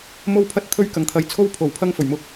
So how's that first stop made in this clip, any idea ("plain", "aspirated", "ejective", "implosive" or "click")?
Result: aspirated